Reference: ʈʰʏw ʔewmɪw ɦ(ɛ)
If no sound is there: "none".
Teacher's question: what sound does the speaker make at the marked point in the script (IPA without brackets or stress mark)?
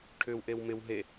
e